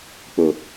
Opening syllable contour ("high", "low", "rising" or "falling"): low